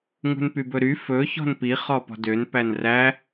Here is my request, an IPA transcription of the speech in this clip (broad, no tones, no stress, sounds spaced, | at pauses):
ŋ ṳ n p y b ɵ ɾ y f ɵ ç ɔ̤ n p i χ ɔ p ɔ̤ d ø n p æ n r æ